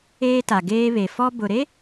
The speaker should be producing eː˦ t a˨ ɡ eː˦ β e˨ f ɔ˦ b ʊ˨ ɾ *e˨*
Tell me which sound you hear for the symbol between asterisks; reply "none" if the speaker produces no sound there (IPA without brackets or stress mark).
e˦